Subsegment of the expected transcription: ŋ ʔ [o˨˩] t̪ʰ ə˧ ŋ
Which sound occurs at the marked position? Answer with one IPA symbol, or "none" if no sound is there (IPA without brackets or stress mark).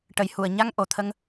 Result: o˨˩